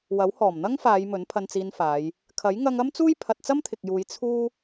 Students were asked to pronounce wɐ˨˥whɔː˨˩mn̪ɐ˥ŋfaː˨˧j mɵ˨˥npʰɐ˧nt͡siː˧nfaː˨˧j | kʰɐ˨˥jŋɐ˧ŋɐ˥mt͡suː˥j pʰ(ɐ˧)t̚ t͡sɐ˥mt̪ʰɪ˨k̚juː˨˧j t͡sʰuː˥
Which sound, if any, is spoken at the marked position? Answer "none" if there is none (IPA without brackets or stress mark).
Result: ɐ˧